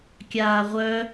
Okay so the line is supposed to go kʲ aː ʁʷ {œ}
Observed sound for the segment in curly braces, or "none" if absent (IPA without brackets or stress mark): œ